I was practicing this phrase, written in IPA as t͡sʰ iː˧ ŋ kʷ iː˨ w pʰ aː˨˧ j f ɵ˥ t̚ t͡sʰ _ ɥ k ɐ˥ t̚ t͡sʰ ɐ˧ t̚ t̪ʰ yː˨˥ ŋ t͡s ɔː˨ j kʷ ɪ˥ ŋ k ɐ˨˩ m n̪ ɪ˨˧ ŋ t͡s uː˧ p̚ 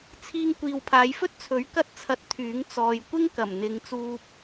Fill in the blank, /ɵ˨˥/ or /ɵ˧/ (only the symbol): ɵ˨˥